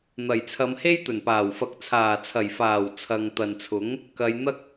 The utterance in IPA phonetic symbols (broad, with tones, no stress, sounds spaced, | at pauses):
n̪ ɐ˨˩ j t͡sʰ ɐ˨˧ m h e˥ j t̪ ɵ˨˩ n p aː˨˩ w f ɐ˨˥ k̚ t͡sʰ aː˨˩ t͡sʰ ɐ˨˩ j f aː˨˩ w t͡sʰ ɐ˨ ŋ t̪ ɐ˨ n t͡sʰ ʊ˨˥ ŋ | k ɐ˨˧ j n̪ ɐ˥ k̚